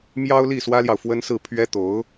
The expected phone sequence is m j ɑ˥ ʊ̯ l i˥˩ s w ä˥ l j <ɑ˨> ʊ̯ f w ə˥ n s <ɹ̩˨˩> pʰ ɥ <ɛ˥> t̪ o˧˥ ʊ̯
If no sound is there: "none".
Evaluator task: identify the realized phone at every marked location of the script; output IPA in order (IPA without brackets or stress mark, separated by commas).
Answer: ɑ˨, ɹ̩˥˩, ɛ˥